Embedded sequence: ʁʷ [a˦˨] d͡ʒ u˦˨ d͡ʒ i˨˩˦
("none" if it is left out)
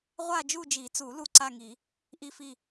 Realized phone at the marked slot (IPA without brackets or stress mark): a˦˨